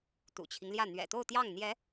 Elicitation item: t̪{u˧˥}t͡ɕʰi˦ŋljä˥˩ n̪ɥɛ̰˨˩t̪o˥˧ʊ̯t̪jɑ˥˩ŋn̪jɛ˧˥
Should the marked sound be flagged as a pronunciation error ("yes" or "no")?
yes